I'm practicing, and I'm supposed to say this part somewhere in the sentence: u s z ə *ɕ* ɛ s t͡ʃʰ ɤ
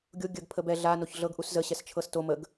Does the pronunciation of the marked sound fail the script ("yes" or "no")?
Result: no